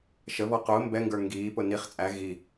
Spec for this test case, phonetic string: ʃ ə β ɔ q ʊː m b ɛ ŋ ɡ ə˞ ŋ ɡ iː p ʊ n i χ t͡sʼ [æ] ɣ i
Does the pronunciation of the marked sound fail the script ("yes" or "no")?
no